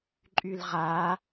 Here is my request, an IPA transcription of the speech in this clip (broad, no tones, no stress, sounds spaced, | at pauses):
ǃʼ y l ʁ a